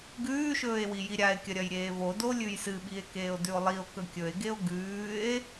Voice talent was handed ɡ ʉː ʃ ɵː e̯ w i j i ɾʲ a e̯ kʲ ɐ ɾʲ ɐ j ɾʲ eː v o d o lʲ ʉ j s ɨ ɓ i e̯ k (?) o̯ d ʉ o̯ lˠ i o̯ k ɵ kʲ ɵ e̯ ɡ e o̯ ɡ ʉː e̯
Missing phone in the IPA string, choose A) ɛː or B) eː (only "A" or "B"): B